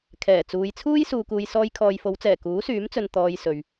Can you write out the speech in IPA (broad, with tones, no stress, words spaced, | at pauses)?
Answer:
kʰɛː˨˩t͡suː˨˧jt͡sʰuː˥j suː˧kuː˧j sɔː˧jkʰɔː˨jfo˨˧wt͡sɛː˨˩ kuː˨˥syː˨˥mt͡sɵ˨n t̪ɔː˧jsɵ˨ɥ